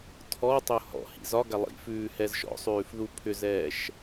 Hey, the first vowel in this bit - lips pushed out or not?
yes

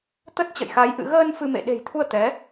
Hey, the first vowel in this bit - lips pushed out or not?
no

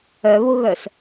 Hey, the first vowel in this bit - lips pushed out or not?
yes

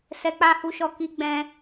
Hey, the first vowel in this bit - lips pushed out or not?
no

